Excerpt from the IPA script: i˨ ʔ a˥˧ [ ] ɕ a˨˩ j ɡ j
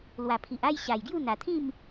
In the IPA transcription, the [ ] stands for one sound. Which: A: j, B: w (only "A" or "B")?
A